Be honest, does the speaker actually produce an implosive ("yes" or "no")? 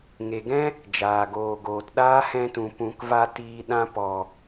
yes